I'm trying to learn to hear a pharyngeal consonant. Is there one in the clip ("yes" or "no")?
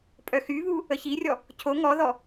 no